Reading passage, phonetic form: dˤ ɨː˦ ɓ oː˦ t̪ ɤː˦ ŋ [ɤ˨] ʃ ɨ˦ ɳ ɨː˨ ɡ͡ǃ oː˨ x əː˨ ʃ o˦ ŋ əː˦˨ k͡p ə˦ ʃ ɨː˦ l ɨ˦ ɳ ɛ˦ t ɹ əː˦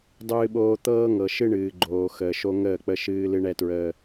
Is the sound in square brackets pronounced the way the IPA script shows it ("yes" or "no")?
yes